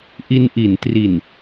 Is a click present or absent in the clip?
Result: absent